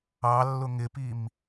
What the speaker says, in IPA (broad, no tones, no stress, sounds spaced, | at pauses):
ɑ lː ʊ ŋ ɪ p i m